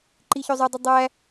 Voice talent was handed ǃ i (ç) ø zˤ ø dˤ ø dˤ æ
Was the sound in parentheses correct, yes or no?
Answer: yes